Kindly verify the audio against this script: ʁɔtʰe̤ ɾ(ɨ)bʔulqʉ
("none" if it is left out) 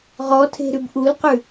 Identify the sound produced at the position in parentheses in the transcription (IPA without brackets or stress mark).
ʉ